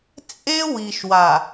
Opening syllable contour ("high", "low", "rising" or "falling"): high